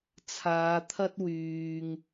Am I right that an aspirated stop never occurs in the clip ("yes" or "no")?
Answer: no